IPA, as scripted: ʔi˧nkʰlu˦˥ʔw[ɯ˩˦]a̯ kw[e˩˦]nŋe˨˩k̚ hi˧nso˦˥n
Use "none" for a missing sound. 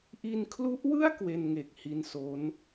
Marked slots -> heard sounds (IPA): ɯ˥˩, e˧

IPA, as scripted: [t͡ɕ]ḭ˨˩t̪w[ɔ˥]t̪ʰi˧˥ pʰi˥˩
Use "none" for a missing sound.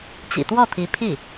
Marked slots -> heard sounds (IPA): t͡ɕ, ɔ˥˩

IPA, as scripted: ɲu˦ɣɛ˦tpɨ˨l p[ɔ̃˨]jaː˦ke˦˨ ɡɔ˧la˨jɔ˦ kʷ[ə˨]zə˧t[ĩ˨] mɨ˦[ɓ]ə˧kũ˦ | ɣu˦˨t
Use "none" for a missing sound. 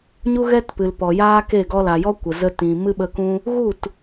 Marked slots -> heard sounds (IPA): ɔ˨, ə˨, ĩ˨, ɓ

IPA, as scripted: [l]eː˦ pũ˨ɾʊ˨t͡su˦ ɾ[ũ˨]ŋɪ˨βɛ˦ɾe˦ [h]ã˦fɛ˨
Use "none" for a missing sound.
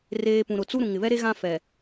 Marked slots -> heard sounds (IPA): r, ũ˨, ɣ

